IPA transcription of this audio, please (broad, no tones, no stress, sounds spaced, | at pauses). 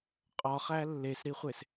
qʼ ɒ χ æ lː e s ɾ i χʷ e s